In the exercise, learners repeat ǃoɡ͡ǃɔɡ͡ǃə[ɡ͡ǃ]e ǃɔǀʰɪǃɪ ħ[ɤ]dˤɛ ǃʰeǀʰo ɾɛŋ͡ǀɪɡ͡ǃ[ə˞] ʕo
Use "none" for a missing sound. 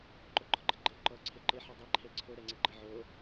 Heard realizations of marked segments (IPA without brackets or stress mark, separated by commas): ɡ͡ǃ, ɤ, ə